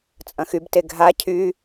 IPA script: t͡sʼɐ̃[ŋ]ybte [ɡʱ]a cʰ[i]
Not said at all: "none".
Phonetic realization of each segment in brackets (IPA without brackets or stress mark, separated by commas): x, ɡʱ, y